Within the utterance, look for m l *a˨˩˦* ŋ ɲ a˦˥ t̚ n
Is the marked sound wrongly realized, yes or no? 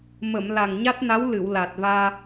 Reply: yes